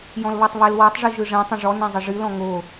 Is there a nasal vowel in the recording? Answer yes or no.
yes